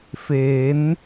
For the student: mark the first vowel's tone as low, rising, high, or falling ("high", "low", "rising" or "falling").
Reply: rising